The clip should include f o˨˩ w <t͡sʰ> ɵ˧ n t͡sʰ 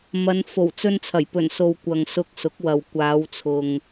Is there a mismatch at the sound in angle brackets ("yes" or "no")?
yes